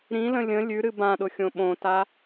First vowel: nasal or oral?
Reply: nasal